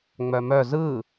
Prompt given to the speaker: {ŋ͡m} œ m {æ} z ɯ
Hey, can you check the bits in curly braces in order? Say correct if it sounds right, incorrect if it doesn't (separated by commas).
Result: correct, incorrect